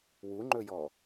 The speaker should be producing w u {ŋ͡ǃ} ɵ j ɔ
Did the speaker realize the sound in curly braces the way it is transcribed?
yes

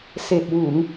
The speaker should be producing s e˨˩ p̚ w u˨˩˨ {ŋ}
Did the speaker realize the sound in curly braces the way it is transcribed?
yes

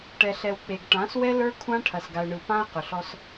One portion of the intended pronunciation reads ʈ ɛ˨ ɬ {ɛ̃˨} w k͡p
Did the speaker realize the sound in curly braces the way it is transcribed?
no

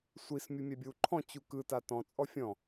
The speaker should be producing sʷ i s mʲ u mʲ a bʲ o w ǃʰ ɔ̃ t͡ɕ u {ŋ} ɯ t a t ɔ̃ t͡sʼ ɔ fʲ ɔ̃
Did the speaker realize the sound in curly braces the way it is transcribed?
no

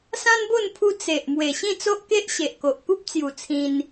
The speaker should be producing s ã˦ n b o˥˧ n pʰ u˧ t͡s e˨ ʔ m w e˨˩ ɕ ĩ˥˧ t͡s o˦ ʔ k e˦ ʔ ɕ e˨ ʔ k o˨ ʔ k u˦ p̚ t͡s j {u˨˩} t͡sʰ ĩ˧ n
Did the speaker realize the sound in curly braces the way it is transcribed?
yes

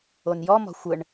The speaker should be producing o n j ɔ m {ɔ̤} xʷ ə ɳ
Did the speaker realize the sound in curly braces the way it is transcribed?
yes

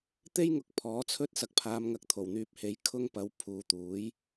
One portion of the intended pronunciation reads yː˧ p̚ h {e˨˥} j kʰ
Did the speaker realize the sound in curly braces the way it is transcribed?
yes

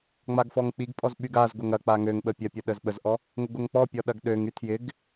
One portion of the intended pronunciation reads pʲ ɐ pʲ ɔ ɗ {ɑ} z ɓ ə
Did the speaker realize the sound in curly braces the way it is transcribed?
no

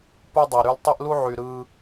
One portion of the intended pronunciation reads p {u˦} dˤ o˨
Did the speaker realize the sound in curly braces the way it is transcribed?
no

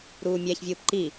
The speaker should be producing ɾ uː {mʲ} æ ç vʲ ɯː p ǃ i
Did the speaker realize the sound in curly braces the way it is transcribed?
yes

